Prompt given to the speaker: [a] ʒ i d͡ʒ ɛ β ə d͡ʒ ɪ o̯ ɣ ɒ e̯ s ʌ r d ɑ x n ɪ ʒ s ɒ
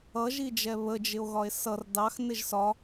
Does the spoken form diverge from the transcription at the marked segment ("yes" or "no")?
yes